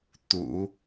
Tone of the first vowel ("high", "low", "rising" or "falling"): low